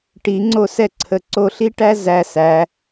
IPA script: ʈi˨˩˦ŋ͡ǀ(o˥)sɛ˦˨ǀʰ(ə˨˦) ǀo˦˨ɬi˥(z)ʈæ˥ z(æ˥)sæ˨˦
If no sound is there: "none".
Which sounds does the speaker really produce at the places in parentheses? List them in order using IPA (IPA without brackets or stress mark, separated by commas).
o˦˨, ə˨˦, none, æ˦˨